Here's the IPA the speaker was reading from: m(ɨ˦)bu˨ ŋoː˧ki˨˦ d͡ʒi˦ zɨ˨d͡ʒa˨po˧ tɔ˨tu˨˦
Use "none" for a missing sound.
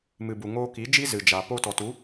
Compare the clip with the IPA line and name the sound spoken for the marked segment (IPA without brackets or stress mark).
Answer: ɨ˨